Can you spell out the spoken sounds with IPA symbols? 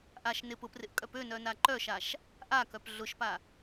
ʔ a ʃ n ɪ p ʊ p r ɪ ʔ kʼ œ p ø n œ n a ǃ œ ʃ a ʃ | ʔ a k œ p ɮ ʊ ʃ p a

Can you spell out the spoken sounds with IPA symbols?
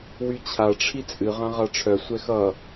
w y t͡ɕʰ a ʈ͡ʂʰ i t͡sʼ ɨ ʁ ã ʁ a ʈ͡ʂʰ œ sʷ ɛ x ʌ

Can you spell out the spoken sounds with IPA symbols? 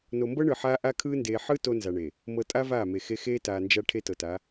n o˨ m b ɤ˦ ɳ ɯ˨ ħ aː˦ ʔ a˦ kʰ ɯː˦ n d eː˨ ħ ɯ˦ t o˦ n z a˨ ɳ eː˨ | m ɤ˨ tʼ a˦ v aː˦˨ m e˨ x e˦ x eː˦ t aː˨ n d͡ʒ a˦ ʈʰ e˦ t ɤ˨ t aː˨˦

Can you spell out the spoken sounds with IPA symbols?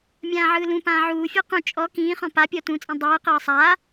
mʲ ãː ʕ ɯː l ũ p ãː ʕ uː fʲ ɤ q ũ t͡ʃʼ ɔ k ĩː χ ɔ̃ p a pʲ ɔ t ũ t͡sʼ ĩ dˤ ɯː q ɤː sˤ aː

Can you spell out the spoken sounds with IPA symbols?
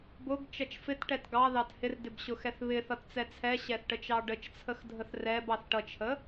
b ʊ ɡ t͡ʃ ʌ t͡ʃ f ɪ t ʈ ɛ t ɡ ɑ ð ɑ t h ɪ r d ɪ b ɕ ʊ x ɛ θ β ɪ θ ʌ t t͡s ɛ t͡sʰ ɛ ɕ ɛ θ ʈ ə t͡ʃ ɑ ɖ ə t͡ʃ t͡sʰ ə x dʱ ə θ r ɛ b ɑ θ ʈ ʌ t͡ʃʰ ə

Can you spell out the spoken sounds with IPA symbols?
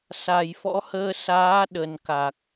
s a˨˩ j f ɔ̰˧˥ h əː˧ s aː˨˦ ɗ ə˨˩ n k a˨˩ k̚

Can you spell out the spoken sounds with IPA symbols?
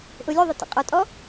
ʔ ʊ lʲ ø ðˤ ɛ t ə̰ qʼ ɔ tʼ ɔ

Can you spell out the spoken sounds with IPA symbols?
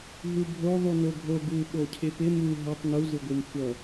ɦ u bʱ o ðˤ u n o ɡʱ o ɡ u ɓ o cʰ ɪ p ɪ m u ɦ ʌ tˤ n u z ɯ ɡʷ ɯ m xʷ ʌ

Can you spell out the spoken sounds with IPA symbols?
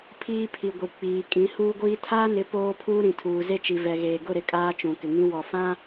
pʰ iː˦ pʰ i˨ ɡʷ i˨ k͡p iː˨ kʼ ĩ˨˦ h uː˦ ɡʷ iː˦ tʰ aː˦ n ɪ˨˦ p oː˦ pʰ uː˦ ɾ ĩ˨ tʰ uː˨ z e˦ t͡ʃ i˨ v ɛ˨ ɣ eː˨ ɡ ʊ˦˨ ɾ ɪ˦ kʼ aː˦ t͡ʃ ũ˨ k ɪ˨ ŋ ĩ˦ w ɔ˨ f ã˦

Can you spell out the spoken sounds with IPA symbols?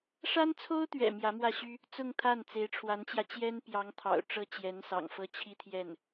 ʂ a˥ n t͡sʰ o˥ ʊ̯ t̪ ɥ ɛ̰˨˩ m j ä˧˥ m w ä˥˩ ɕ y˥ | t͡s ʊ˥˧ ŋ t̪ʰ a˥˩ n t͡s e˧˥ ɪ̯ ʈ͡ʂʰ w a˧˥ n t͡ɕ j ä˧ t͡ɕ j ɛ˥ n p j ɑ˧˥ ŋ t̪ʰ ɑ̰˨˩ ʊ̯ ʈ͡ʂ ɤ˥ t͡ɕ j ɛ˧˥ n s ɑ̰˨˩ ŋ f ɤ˥˩ t͡ɕʰ i˥ t̪ʰ j ɛ˥˩ n

